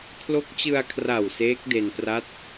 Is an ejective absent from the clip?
yes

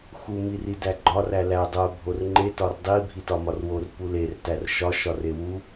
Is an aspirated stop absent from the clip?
yes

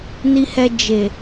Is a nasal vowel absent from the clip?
yes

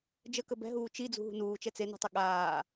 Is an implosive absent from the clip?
no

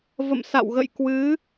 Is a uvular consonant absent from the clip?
yes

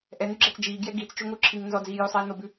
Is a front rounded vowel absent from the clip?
no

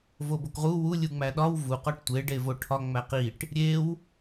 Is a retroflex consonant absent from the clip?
no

